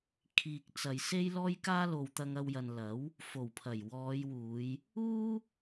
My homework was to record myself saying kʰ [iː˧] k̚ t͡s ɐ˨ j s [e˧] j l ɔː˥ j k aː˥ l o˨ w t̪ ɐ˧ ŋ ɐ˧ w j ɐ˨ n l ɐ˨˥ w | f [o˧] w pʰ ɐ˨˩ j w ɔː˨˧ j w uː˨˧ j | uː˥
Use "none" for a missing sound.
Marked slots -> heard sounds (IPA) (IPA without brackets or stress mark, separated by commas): iː˨, e˥, o˨˩